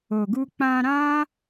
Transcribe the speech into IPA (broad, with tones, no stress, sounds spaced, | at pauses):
o˨ ɡ u˧ k͡p ã˧ ɾ ã˦